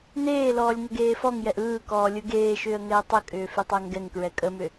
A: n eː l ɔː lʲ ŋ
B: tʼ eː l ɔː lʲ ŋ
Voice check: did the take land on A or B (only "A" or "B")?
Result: A